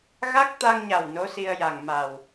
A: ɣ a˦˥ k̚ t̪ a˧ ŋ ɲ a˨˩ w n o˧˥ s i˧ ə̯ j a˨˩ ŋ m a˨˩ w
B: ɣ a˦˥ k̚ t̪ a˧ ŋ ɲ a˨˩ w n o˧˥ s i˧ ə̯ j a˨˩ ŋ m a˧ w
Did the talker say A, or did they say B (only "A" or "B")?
A